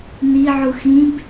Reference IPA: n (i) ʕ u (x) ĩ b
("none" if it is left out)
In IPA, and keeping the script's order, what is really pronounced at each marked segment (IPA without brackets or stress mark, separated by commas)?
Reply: i, x